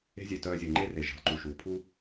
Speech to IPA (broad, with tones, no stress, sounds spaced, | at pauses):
e̤˧ zʲ œ˨ t œː˧ zʲ o˨ ŋ͡ǃ e˦ r e˨ ʒ e̤˨ lˠ ǃ u˨ ʃ uː˨ pʰ u˦